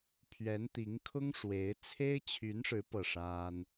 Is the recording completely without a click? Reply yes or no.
yes